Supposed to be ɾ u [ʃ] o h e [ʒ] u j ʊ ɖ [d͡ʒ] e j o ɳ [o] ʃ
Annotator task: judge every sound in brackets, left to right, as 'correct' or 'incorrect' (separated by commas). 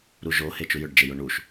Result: incorrect, incorrect, correct, incorrect